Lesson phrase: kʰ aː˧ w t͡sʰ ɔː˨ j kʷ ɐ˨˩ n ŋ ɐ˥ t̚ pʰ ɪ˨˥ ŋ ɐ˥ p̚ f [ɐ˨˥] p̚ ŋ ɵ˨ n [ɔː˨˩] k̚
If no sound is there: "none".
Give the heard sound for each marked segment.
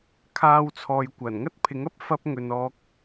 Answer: ɐ˧, ɔː˧

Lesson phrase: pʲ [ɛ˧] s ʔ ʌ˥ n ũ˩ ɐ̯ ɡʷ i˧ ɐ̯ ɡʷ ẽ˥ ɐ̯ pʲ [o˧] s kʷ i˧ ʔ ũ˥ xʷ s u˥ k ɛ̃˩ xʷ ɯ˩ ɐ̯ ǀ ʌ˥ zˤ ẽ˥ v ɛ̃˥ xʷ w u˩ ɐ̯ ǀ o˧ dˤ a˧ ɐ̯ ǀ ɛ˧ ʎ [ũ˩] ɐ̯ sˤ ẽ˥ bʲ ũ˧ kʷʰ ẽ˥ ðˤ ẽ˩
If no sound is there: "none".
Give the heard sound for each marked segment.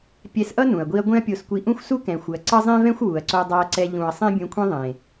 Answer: ɛ˧, o˧, ũ˩

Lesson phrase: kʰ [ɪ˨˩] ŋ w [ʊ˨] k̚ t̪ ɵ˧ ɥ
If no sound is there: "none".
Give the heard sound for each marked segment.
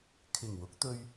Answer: ɪ˨˩, ʊ˨˥

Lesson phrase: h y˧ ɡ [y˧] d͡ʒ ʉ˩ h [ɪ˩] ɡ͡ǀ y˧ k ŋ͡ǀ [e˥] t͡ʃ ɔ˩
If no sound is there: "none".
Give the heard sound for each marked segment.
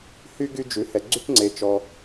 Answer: y˧, ɛ˩, e˩

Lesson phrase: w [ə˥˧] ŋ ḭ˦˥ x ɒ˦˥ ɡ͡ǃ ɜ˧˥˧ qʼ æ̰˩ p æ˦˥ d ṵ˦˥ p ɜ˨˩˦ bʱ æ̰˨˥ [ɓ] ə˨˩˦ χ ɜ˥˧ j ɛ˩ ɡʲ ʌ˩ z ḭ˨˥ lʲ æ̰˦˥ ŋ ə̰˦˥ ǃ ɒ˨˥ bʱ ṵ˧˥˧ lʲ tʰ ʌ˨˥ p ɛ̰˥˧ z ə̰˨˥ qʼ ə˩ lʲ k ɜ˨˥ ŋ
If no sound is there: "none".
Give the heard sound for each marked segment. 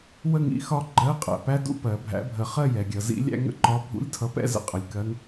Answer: ə˥˧, bʱ

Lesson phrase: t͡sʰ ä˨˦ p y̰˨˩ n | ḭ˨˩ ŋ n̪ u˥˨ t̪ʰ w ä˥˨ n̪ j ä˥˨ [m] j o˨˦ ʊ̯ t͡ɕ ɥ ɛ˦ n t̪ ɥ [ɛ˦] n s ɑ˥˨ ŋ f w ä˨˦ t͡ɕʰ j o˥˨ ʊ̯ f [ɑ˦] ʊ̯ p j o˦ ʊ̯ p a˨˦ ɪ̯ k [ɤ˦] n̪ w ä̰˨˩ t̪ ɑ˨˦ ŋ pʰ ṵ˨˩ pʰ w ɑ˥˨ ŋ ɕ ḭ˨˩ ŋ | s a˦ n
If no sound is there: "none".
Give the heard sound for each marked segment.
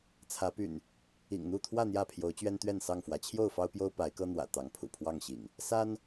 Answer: pʰ, ɛ˥˨, ɑ˦, ɤ˦

